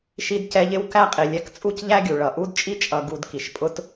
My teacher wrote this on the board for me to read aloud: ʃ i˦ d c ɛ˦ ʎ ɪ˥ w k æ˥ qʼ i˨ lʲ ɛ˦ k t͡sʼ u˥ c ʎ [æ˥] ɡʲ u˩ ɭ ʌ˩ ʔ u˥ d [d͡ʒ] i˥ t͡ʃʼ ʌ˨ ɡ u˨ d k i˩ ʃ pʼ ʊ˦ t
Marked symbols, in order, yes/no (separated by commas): yes, no